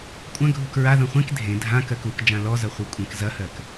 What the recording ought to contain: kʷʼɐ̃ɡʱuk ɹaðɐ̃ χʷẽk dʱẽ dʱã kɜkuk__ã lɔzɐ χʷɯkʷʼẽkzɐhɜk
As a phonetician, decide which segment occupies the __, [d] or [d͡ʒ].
d͡ʒ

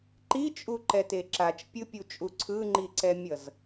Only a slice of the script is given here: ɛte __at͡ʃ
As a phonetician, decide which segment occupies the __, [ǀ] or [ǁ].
ǁ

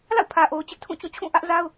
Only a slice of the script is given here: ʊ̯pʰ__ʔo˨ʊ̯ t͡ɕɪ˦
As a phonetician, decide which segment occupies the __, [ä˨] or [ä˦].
ä˨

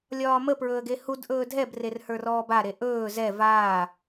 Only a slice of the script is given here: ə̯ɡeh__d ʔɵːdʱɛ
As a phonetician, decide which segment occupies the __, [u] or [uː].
u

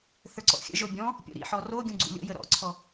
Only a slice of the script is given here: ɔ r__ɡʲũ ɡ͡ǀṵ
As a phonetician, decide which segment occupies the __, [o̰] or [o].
o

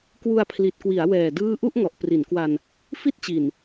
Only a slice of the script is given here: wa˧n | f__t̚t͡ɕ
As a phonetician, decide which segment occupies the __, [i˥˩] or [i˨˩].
i˥˩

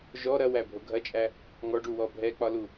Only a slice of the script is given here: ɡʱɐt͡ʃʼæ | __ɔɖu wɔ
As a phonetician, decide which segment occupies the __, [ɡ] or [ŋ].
ŋ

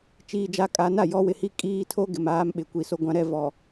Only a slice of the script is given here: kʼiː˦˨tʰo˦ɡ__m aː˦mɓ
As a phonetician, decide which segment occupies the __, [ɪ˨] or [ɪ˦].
ɪ˨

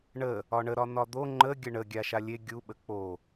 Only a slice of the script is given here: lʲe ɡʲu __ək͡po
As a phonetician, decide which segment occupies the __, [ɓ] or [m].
ɓ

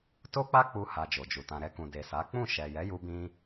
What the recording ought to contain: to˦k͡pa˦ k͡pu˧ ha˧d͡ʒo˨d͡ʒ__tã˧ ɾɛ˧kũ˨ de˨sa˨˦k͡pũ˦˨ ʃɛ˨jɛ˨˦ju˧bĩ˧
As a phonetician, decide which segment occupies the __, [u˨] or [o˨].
u˨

